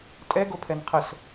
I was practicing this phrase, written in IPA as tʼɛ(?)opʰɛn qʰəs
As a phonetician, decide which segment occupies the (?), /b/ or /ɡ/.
ɡ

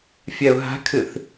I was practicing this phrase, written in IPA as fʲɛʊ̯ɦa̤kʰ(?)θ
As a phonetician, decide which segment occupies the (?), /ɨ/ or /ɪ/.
ɨ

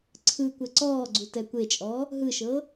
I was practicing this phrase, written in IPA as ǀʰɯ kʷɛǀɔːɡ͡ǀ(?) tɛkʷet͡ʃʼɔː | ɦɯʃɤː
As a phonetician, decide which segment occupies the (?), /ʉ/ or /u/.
u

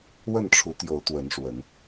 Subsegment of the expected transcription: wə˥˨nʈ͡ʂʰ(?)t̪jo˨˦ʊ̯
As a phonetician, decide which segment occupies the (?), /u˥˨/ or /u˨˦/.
u˨˦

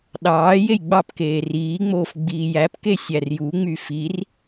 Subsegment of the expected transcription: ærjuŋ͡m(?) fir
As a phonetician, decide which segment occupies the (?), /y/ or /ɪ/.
y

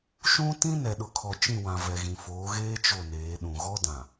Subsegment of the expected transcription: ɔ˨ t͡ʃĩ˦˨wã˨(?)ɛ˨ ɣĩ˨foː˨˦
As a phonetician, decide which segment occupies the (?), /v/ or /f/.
v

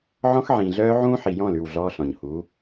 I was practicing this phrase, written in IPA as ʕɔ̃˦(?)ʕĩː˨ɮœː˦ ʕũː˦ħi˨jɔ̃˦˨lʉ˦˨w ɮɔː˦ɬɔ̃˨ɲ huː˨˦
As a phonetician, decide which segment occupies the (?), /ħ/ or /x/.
x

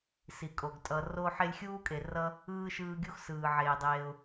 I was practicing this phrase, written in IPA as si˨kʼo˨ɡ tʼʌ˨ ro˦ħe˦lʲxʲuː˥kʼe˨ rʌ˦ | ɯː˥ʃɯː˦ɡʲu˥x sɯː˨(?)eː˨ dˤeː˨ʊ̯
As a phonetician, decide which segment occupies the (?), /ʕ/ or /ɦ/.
ʕ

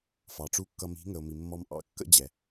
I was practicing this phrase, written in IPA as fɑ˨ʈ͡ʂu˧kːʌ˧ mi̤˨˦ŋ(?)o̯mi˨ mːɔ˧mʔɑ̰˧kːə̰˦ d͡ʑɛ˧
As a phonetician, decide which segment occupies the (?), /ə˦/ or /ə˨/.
ə˨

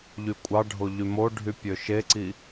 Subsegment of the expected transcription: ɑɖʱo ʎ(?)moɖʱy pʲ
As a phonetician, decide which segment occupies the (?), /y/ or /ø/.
y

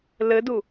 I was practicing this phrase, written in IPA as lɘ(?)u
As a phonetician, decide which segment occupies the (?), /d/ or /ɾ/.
d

